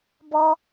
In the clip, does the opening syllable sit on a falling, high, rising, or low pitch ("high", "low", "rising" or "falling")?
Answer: high